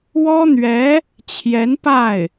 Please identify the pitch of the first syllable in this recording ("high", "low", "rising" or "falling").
high